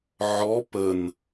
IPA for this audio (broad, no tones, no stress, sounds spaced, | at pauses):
ʕ ɔ p ə n